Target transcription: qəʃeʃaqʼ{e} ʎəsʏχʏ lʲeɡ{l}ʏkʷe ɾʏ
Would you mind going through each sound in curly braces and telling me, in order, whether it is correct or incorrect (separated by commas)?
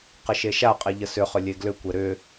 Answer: correct, correct